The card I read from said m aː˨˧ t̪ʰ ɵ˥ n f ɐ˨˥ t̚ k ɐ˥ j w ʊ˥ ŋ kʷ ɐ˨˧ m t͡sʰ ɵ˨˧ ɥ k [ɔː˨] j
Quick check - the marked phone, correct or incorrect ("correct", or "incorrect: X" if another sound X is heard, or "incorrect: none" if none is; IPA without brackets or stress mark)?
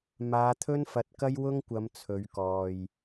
correct